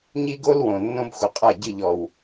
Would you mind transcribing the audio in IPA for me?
ɲ i˦ ɡ o˦ l w õ˨ nː õ˦ b xʷ ə˨˦ qʼ a˦˨ ɟ ɨ˦˨ ʎ ɔ˨ w

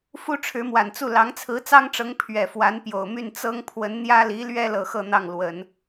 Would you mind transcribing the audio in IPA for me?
f u˥ ʈ͡ʂʰ ɻ̩˧˥ m w a˨˩ n t͡s u˥˩ l ɑ˧˥ ŋ t͡sʰ ɹ̩˧˥ t͡s ɑ˥ ŋ ʈ͡ʂ ɤ˧˥ ŋ pʰ ɥ ɛ˨˩ f w a˧˥ n p j o˨˩ ʊ̯ m y˥˩ n t͡s ɤ˥ ŋ pʰ w ə˧˥ n n̪ j ä˥ l i˧˥ l ɥ ɛ˥ l ɤ˨˩ x ɤ˥˧ n̪ ɑ˥˩ ŋ l w ə˨˩˦ n

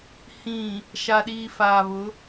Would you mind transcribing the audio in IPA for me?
h ĩ˨ | ʃ a˨ ɗ iː˨ f aː˨ β ʊ˨˦

